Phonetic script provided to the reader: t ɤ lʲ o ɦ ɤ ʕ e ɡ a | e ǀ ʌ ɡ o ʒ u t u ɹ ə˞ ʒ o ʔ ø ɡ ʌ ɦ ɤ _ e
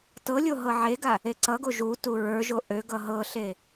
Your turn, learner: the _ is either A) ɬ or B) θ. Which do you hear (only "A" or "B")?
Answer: A